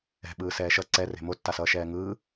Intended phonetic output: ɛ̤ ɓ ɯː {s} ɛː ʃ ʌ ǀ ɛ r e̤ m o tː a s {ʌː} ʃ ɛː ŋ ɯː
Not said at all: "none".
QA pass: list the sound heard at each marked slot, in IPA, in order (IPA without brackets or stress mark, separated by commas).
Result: s, ʌː